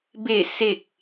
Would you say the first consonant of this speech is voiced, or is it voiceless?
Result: voiced